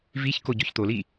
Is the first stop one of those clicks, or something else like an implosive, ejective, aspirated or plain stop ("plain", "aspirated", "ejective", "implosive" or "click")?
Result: plain